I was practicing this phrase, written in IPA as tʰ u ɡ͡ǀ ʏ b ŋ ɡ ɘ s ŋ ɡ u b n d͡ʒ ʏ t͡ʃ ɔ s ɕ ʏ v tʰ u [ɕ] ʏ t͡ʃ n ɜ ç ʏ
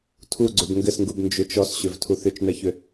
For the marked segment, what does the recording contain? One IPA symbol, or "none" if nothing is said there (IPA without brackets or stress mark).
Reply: θ